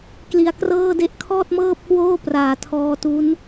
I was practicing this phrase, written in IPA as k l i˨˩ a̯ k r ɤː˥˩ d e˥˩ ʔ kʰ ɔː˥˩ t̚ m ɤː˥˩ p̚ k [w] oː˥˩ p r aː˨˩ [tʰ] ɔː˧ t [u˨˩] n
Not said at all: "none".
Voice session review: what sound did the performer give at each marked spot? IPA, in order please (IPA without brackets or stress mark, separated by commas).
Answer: w, tʰ, u˦˥